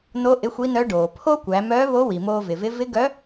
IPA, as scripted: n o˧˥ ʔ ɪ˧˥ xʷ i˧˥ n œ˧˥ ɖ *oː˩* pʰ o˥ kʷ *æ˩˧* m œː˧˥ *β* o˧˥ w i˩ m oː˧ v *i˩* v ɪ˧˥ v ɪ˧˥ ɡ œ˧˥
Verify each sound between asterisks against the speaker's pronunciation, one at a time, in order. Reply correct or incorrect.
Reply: correct, correct, correct, incorrect: ɪ˩

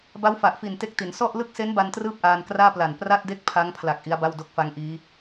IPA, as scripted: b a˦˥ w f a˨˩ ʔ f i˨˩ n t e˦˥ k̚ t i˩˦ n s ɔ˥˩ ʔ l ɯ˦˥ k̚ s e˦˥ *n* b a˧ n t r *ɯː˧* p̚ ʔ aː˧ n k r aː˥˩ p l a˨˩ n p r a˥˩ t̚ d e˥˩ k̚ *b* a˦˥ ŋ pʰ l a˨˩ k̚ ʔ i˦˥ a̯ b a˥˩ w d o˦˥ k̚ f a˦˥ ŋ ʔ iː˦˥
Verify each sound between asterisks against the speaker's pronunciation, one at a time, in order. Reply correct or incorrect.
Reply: correct, incorrect: ɯː˥˩, incorrect: pʰ

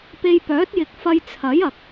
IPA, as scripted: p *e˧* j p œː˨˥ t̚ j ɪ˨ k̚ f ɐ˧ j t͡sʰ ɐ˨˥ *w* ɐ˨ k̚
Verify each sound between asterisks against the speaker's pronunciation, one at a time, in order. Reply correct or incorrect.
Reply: correct, incorrect: j

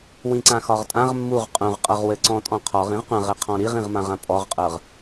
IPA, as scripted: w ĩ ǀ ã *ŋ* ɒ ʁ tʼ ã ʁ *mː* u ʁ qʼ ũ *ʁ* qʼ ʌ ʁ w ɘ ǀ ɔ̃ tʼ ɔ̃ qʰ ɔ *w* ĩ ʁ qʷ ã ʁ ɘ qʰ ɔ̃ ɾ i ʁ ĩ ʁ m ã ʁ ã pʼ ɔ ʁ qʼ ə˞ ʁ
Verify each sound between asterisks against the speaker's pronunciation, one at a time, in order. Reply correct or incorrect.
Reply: incorrect: x, correct, correct, incorrect: ʁ

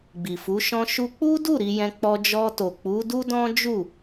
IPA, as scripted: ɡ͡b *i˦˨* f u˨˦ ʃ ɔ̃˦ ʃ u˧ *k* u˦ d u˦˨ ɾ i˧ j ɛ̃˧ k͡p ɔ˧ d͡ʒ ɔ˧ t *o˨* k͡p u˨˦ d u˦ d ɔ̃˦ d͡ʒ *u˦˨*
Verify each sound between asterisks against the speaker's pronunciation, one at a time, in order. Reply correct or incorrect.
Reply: incorrect: i˨, incorrect: k͡p, correct, correct

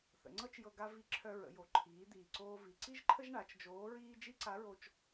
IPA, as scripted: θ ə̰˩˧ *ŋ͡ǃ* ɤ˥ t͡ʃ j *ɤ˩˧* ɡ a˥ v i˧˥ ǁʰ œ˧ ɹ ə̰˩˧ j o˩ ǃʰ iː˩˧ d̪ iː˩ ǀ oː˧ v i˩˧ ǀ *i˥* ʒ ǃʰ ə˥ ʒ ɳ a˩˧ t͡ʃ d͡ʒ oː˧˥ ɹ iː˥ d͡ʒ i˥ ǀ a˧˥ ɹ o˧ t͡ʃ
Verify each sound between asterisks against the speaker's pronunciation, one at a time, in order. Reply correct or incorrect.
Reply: incorrect: ŋ͡ǀ, incorrect: ɤ˧, correct

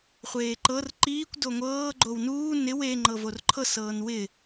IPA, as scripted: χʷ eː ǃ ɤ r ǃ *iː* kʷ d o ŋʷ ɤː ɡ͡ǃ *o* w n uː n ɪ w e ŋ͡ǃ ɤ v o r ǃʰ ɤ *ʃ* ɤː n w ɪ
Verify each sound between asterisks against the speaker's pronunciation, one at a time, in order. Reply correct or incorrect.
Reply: correct, correct, incorrect: s

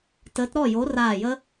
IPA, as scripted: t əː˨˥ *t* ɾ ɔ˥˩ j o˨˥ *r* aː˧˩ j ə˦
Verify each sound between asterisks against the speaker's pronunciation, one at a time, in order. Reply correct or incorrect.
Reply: correct, correct

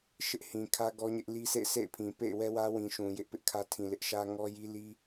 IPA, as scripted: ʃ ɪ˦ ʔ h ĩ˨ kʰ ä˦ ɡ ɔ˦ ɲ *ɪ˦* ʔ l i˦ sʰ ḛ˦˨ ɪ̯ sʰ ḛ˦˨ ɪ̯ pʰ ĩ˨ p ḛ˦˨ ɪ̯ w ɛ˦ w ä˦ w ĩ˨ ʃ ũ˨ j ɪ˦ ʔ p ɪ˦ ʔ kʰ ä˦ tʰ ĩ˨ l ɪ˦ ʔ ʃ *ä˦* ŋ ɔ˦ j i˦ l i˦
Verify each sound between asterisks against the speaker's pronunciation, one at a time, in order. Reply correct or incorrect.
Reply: correct, correct

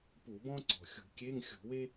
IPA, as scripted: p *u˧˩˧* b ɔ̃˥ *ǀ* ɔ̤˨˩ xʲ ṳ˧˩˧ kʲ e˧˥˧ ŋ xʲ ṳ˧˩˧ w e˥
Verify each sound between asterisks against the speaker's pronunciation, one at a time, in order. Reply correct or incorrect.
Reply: correct, correct

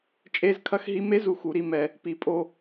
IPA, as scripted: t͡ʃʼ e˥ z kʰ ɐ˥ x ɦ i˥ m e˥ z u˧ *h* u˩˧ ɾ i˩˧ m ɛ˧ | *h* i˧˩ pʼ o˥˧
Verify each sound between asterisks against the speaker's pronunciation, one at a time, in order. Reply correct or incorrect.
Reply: incorrect: x, incorrect: p

